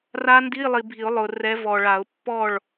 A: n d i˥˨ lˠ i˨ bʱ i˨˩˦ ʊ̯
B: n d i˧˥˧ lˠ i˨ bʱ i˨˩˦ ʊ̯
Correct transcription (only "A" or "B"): B